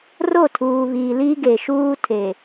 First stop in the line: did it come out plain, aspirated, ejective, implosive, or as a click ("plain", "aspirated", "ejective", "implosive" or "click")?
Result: aspirated